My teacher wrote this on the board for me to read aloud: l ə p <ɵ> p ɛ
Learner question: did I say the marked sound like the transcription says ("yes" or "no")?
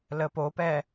no